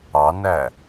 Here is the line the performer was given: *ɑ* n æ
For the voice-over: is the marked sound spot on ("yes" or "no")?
yes